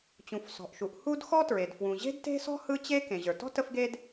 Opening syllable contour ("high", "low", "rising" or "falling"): low